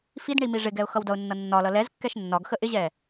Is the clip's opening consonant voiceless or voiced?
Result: voiceless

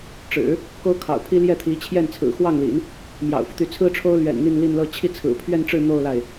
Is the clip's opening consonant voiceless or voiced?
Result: voiceless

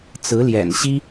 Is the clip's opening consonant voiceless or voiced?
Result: voiceless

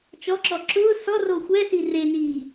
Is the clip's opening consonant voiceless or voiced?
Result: voiceless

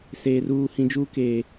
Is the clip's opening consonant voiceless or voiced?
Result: voiceless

